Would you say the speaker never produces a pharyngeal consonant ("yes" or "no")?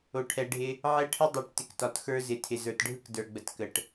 no